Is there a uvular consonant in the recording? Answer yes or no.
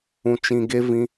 no